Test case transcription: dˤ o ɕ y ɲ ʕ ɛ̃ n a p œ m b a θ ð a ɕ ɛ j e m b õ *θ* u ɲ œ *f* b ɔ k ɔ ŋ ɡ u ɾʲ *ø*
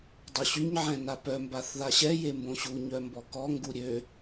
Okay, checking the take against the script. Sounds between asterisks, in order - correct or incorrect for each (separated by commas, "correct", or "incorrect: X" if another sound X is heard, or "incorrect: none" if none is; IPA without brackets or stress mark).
incorrect: ɕ, incorrect: m, correct